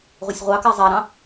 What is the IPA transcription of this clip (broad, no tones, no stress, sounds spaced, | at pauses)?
ʁʷ i sʲ ʁʷ ɑ k a zˤ a ɾ ɑ̃